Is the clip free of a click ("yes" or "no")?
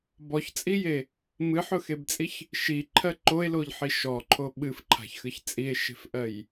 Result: no